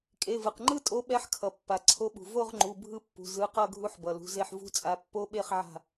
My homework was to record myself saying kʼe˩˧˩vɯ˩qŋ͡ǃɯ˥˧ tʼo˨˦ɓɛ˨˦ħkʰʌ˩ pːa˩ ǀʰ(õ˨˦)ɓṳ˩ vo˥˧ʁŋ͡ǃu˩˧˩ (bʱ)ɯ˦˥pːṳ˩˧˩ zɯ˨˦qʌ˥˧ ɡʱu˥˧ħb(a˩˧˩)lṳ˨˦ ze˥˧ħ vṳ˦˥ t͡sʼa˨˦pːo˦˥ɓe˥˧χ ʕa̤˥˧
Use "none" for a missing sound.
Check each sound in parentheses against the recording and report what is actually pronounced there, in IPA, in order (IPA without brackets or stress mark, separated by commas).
o˨˦, bʱ, ʌ˩˧˩